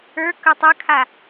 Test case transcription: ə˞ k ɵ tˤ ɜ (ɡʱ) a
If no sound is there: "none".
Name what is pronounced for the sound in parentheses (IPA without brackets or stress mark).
kʰ